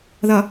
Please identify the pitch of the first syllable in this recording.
low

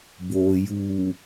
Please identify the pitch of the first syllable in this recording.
low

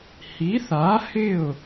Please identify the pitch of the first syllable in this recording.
rising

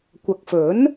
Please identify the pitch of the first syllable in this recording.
low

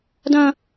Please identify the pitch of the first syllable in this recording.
high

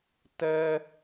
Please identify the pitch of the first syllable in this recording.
high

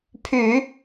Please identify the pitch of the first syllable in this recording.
low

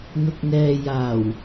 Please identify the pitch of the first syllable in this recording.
low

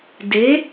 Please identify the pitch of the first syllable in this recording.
rising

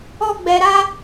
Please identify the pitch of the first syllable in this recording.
high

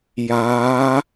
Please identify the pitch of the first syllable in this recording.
rising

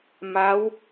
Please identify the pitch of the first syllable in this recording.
rising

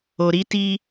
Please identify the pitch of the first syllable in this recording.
low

